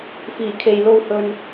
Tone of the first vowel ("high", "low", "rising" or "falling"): low